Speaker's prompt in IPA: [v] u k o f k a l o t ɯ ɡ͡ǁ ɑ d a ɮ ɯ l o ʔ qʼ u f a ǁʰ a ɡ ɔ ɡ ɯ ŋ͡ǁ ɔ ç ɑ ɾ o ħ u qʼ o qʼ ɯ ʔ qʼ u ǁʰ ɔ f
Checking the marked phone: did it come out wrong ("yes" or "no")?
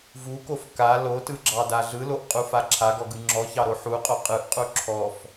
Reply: no